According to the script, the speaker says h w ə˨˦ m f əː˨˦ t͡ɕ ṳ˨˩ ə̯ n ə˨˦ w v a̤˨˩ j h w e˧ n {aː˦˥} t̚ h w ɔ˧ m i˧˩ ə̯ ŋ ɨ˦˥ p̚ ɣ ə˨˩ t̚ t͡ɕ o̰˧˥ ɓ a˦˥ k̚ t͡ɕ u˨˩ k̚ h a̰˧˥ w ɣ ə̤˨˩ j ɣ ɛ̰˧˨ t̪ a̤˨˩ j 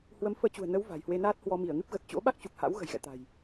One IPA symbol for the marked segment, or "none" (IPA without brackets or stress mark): aː˦˥